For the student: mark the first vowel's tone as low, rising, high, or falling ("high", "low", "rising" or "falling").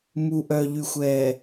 low